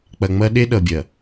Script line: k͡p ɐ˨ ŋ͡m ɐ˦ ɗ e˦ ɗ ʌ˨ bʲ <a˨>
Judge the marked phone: incorrect: ɐ˨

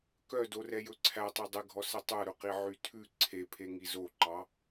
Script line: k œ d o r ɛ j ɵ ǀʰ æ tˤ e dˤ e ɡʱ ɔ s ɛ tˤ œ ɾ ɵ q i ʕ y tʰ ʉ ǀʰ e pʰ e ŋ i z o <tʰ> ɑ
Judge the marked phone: incorrect: ǃ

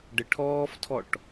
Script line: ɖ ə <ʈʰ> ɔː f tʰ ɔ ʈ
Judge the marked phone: correct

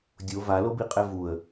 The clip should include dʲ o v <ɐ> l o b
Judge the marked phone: incorrect: a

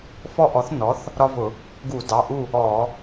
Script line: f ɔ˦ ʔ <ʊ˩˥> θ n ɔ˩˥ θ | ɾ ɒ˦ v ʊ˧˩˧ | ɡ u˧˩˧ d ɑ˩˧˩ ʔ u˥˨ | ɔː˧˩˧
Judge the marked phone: incorrect: ɔ˩˥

